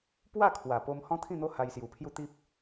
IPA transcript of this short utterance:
p w a˥˧ kʰ w a˨˩ p o˦ m h ɔ̃˦ t̪ʰ ĩ˥˧ n̪ o˦ h a˧ j s j u˨˩ pʰ j u˥˧ t̪ i˦ p̚

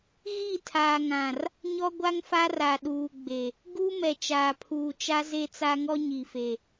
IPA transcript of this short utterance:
ɣ i˦˨ tʰ aː˨ ŋ ã˨ r | ɲ ɔ˦ ɡʷ a˦ ŋ f a˦ r a˨ ɗ uː˨ ɡ͡b e˨ | ɡ u˦ m ɛ˨ t͡ʃ aː˨ pʰ uː˨ t͡ʃ a˦ z e˦ t͡s a˦ ŋ ɔ˦ ɲ i˨ f e˨

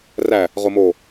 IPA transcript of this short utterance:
r æ | ʁ o m o

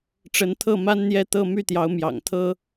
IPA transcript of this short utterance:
ʈ͡ʂ ə˧˥ n t̪ʰ ɤ˥˩ m a˥ n n̪ j ɛ˥˧ t̪ ɤ˥˧ m y˥˩ t̪ j ɑ˧˥ ʊ̯ m j ɑ̰˨˩ ŋ t̪ʰ ɤ˥

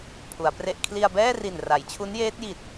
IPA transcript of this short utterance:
pʰ u˩˦ a̯ p r e˥˩ ʔ kʰ l i˧ a̯ b ɛː˥˩ r i˨˩ n r a˩˦ j t͡ɕʰ u˦˥ n j eː˦˥ t̚ j i˨˩ t̚

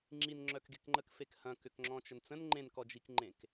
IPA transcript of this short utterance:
ŋ͡ǁ i n ŋ͡ǁ œ k ɡ e k ŋ͡ǃ ə k f e k h ɐ̃ k ʏ k ŋ͡ǁ ɔ̃ t͡ʃ œ n t͡s ə̃ n ŋ͡ǃ ẽ n k ɔ d͡ʒ i k ŋ͡ǃ ẽ k

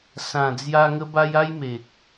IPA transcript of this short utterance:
s ã˨˩ d͡z j a˧ ŋ ə˦ b a˦ j a˦ j m e˨ k̚

